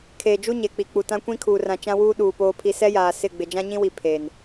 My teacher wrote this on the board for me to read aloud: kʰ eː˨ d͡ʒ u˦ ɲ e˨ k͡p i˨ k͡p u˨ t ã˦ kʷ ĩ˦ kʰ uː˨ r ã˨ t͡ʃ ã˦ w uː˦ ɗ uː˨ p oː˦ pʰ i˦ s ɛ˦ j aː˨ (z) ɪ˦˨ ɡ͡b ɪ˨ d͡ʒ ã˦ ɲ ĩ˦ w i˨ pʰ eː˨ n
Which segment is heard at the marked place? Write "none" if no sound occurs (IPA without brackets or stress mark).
s